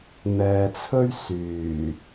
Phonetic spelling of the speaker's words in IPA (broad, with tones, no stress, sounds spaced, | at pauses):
n̪ ɛː˨ t͡sʰ ɵ˥ ɥ s yː˨˩